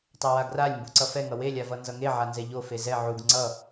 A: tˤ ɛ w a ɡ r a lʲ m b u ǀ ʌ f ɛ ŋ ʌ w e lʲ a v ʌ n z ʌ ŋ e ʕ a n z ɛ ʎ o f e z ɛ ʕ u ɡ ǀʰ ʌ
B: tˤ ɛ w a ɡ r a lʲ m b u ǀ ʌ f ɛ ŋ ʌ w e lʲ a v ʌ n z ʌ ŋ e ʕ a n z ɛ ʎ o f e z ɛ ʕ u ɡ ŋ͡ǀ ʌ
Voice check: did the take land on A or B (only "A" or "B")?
B